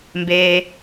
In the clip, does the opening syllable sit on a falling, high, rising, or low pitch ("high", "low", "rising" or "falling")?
low